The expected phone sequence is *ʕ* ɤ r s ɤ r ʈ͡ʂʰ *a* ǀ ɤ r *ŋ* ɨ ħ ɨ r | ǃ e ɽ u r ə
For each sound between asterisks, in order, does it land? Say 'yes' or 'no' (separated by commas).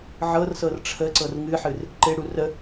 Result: yes, no, yes